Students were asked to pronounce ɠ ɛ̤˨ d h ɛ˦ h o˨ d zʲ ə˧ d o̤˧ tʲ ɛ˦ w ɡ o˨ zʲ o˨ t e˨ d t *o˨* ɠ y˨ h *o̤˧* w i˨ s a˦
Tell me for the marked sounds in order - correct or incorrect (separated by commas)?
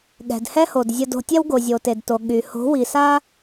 correct, incorrect